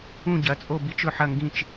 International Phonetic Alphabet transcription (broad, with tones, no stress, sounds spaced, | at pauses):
ũ˦˨ ɟ ɐ˩˧˩ t͡sʼ o˦˨ b i˧˥ t͡ʃ ɵ˦˨ ħ ɐ˦˨ ŋ ɡ ĩ˦˨ t͡ʃ